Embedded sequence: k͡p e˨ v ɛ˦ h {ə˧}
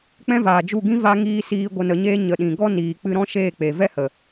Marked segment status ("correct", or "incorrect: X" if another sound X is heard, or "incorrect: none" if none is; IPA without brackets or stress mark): incorrect: ə˨